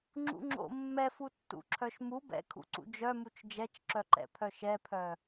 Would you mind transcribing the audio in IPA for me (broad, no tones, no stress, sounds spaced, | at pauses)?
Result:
ŋ͡ǁ ṵ ŋ͡ǁ o̰ mː ɛ f u tː ṵ ǁʰ œ ʃ m u b ɛ̰ kʰ ṵ ǀ ṵ d͡ʒ œ m u t͡ʃ d͡ʒ ɛ t͡ʃ ǁ œ ǃ ɛ̰ pʰ œ ʃ ɛ pʰ œ